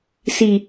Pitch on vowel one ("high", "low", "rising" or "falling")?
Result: low